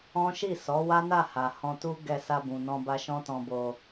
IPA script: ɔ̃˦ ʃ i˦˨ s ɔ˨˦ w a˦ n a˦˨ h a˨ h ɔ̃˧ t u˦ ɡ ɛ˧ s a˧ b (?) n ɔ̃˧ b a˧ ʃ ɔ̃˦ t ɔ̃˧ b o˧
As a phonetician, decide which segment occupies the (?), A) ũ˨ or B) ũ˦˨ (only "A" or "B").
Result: A